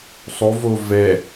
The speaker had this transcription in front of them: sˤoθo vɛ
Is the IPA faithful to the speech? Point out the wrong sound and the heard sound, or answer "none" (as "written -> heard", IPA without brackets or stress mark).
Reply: θ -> v